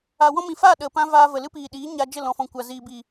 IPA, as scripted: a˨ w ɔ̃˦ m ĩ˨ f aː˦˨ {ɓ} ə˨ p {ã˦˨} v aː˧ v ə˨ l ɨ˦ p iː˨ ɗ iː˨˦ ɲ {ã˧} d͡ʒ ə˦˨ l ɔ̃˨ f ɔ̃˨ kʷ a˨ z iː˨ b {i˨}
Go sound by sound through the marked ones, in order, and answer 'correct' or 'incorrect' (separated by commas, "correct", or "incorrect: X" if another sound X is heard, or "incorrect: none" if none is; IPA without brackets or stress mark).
incorrect: ɗ, incorrect: ã˦, incorrect: a˧, correct